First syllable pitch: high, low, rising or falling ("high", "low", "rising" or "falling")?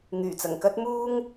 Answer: low